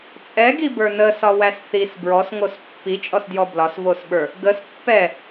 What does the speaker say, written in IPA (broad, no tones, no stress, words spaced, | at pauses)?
t͡sʼɛɡibə˞ nəsɒwæs θis bɹɔsŋos pːit͡ʃʼɔsdjɔ blɒsvosɓə˞ | ɡəs pːɛ